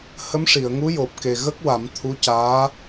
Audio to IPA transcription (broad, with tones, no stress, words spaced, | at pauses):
hə˧˥mʂi˨˩˨ə̯ŋu˧˥jo˨˩p̚ ke˨˩ɣə˦˥k̚wa˨˩˦m t̪ʰu˧˥caː˧˥